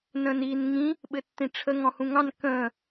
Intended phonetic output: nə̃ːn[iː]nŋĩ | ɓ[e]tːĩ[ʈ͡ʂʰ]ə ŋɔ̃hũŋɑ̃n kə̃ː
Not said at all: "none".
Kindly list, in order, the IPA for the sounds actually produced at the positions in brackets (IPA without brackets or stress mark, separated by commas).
iː, ɘ, ʈ͡ʂʰ